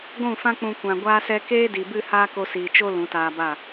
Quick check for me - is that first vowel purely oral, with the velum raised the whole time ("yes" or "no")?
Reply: no